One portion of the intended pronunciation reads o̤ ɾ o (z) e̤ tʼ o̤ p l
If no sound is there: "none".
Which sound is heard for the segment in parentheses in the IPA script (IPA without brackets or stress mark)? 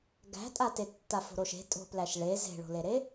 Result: ʃ